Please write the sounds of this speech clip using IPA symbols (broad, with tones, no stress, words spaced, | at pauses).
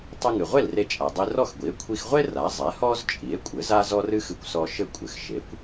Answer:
tˤɘ˧ŋɨ˩ʁʷe˥˩l re˧t͡ʃʼa˩ dˤi˧rɔ˥˩xɡʷi˩˥e̯ kʷʰi˧xʁʷe˥ ra˩˥ zˤɛ˩˥hɔ˥z t͡ʃʼi˩˥e̯kʷʼɘ˩˥z a˥zɔ˥ rɨ˥xɨ˧kʷsɔ˧ʃɘ˥˩ kʷʼɘ˩xʃe˩˥kʷ